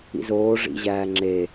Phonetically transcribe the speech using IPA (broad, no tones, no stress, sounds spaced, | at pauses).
ḭ z oː ʐ ḭ ʑ æː ŋ͡ǁ e